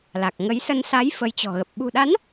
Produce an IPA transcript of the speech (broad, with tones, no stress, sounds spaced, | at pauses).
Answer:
l a˨˩ k̚ ŋ ə˨˦ j s ə˧ n s a˨˦ j f ə˨˦ j t͡ɕ ɔ̤˨˩ ɣ ə˨˩ p̚ ɓ ṳ˨˩ ɗ a˨˦ n